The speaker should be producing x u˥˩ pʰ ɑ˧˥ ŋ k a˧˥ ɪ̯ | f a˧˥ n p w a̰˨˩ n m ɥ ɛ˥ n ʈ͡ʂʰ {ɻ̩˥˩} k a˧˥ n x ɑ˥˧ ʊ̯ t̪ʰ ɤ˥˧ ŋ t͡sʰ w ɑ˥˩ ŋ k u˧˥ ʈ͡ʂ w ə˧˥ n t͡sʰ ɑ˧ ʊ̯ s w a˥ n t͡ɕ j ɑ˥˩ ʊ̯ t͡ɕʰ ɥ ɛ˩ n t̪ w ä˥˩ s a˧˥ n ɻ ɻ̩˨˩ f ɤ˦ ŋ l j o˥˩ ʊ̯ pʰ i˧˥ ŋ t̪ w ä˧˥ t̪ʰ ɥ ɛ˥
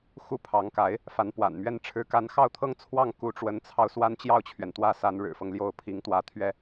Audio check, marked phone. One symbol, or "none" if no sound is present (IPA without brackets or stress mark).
ɻ̩˧˥